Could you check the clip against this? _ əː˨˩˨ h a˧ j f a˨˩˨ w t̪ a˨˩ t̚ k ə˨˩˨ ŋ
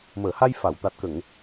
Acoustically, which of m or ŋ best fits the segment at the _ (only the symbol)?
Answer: m